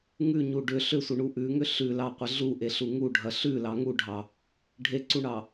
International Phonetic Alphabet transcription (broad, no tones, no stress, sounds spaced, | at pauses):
ŋ ʉ ɲ u ɖ ʏ ɬ ʏ sʷ ə ɳ u ʔ ʉ ŋ ʏ ɬ ʉ l ɑ qʷ ə ɮ u ʔ e ɬ u ŋ u ɖʱ ɐ ɬ ʉ l ɑ ŋ u ɖʱ ɑ | ɖʱ e ǀ u ɳ ɑ